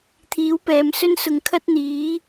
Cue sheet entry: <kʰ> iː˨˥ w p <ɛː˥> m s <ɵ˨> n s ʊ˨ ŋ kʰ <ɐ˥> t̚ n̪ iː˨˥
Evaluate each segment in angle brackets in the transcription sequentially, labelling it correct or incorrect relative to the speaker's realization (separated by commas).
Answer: incorrect, incorrect, incorrect, correct